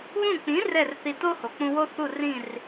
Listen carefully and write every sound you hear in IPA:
βũ˥˩ k͡pĩ˩˥ rɛ˥˩rθi˧to˥ho˩ k͡pũ˧wo˥θu˥˩rĩ˥˩r

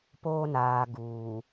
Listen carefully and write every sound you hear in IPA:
poː˦naː˨ ɡuː˨

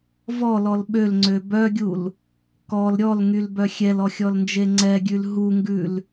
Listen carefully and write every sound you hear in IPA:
vɔlɔl ɓølŋ͡ǀø bœɡʲul | kɔl ɾʲɔlŋylbœ xʲɛlɔxʲɔlnd͡ʒe ŋ͡ǀɛɡʲʉl ɦuŋɡʉl

